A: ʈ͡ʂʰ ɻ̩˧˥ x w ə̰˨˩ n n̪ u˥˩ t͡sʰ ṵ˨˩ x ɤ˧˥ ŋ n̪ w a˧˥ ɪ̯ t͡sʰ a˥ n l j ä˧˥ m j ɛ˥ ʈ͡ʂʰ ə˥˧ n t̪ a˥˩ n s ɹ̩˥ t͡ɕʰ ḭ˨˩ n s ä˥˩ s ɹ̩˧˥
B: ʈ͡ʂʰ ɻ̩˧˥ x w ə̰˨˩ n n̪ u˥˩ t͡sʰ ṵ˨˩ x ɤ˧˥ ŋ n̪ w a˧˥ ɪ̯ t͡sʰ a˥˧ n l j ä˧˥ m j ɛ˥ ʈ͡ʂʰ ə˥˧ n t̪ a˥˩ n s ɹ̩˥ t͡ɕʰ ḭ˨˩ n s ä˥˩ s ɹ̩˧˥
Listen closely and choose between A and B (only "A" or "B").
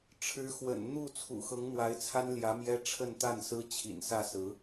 A